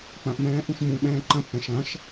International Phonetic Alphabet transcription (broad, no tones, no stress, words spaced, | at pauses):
k͡pɐ̃ʔmɛ̃ː ʔũʃmũɓɛ̃ː ǃɐ̃pːɛ̃ ʃɐ̃ʃ